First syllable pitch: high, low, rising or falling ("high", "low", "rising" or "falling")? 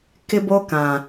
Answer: high